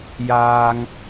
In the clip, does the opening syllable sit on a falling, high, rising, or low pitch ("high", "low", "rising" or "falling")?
high